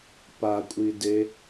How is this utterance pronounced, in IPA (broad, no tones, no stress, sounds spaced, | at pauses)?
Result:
p a kʷʼ i d e